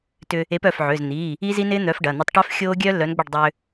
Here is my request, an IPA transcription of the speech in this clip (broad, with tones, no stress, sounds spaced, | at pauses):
t ʏ˧ | e˨˥ p œ˩˧˩ f ʕ ʏː˩˧˩ z n̪ iː˩˧˩ | i˦˥ z i˦˥ n ɪː˦˥ n̪ œ˨˥ f ɖ ɐ˩˧˩ n̪ ɐ˧ tˤ ʈ œ˦˥ f xʲ oː˦˥ ɡʲ œː˦˥ lː œ˨˥ n ɡ͡b ʏ˥˨ ɖ dˤ ʏː˧